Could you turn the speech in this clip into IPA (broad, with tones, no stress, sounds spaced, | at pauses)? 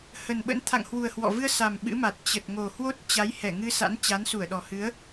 h ə˨˩ n ɓ ə̰˧˥ n t̪ʰ a̰˧˨ ŋ h w u˨˩ ə̯ h w ɔ̰˧˨ v ɨ˧ ə̯ s a˨˩ m ɓ ɨ̰˧˥ m a˨˩ t̚ t͡ɕ ə˨˩ t̚ ŋ o˨˩ h w o˦˥ t̚ t͡ɕ a˨˦ j h ɛ˧˩ ŋ ɨ˧ s a̰˧˥ n t͡ɕ a˨˦ n s u˧˩ ə̯ ɗ ɔ˨˩ h ɨ˨˦ ə̯